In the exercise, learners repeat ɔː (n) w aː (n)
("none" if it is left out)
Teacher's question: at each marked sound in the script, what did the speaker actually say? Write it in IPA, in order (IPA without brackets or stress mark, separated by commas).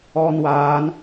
n, n